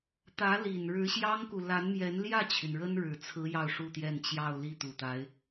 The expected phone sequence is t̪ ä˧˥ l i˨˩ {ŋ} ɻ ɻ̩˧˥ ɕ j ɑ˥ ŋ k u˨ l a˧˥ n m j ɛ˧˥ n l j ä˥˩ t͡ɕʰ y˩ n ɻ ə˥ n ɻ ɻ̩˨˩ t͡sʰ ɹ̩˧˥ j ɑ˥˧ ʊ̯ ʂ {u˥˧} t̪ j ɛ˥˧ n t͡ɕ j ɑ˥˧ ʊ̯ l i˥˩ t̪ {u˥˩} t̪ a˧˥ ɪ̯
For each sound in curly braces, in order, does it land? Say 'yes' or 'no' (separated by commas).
no, yes, no